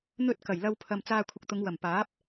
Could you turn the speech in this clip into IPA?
n̪ ɵ˥ t̚ k ɐ˨˩ j l ɐ˧ w pʰ ɐ˨ m t͡s aː˧ kʷʰ ɪ˨ k̚ t̪ ʊ˨˧ ŋ w ɐ˨˩ m p aː˨˥ p̚

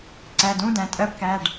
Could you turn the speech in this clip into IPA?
ǀ æ˩˧˩ d ũ˧˥˧ d æ̃˩˧ tʼ ɜ˧˥˧ p k æ˩˧˩ ɖ

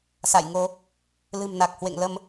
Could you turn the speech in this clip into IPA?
s a̰˧˨ j ŋ o˧ | l ɨ̤˨˩ m n a˨˩ k̚ h w ḛ˧˨ ŋ l ə˧ m

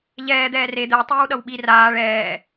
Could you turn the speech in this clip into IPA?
ʎ ɛː d̪ ɛː r e d̪ ɛ tˤ iː w ɗ ʌ w ɓ i r aː ɭ ɛː

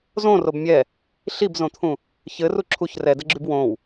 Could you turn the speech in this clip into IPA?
z õ r o b mʲ ɛ | ɬ i b z õ t̪ʰ ũ | ç ɘ r u ǁʰ u ç r ɛ d ɘ ɡ͡ǁ y b w õ w

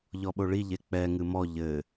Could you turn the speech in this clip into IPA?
ʎ ɔ ɓ o ɭ i ʎ e k͡p ɛ ŋ ɨ m ɔ ʎ ɘ

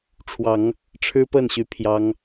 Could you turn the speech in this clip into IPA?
ʈ͡ʂʰ w ɑ˨˦ ŋ | ʈ͡ʂʰ ɻ̩˦ p ə˥˨ n ɕ y˨˦ pʰ j ɑ˦ ŋ

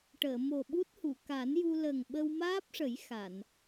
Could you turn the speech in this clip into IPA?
ʈ əː˨˩˨ m o˨˩ ɓ u˦˥ t̚ h u˨˩˨ k a˨˩˦ n j u˧ l ə˨˩ ŋ ɓ ə˧ w m aː˦˥ p̚ ʂ ə˨˩˦ j x a˨˩˨ n

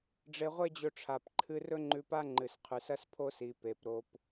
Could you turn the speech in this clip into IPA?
ɖ͡ʐ e˧ ʁʷ e˦ d͡ʑ ɵ˧ ʈ͡ʂʰ a˨ p ǃʰ ɨ˧ r ɵ˦ ŋ͡ǃ ʉ˧ p a˦ ŋ͡ǃ ɨ˨ s qʰ ʉ˨ s ɐ˦ s pʰ o˦ s i˨ p e˨ p ɾ o˧ p

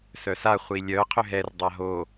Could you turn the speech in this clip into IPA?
s œ s a χʷ i lʲ œ qʰ ʏ ɦ ɛ r dˤ a ɦ o

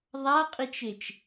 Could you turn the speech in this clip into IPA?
ðˤ a qʼ i t͡ʃ e t͡ʃ

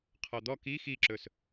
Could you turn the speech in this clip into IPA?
qʰ ɔ d̪ ɔ k i x i ǁ ɵ s

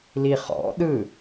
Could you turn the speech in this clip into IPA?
l i χ ɔ̰ ɗ ɯ

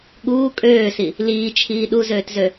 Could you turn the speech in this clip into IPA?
ɠ uː kʼ øː s i | l iː t͡ʃʰ iː ɗ u z øː t z ø

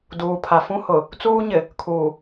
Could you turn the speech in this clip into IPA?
d uː˨ pʰ a˨ f ũ˦ h ʊ˨ | t͡s uː˦ ɲ ɪ˨ | kʰ uː˨

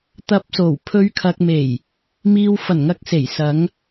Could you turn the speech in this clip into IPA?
t̪ ɐ˨˥ p̚ s o˨˩ w pʰ ɵ˨˧ ɥ kʰ ɐ˨ k̚ m e˨˩ j | m iː˨ w f ɐ˨˩ n ŋ ɐ˨˥ k̚ s e˨˩ j s ɐ˨˧ ŋ

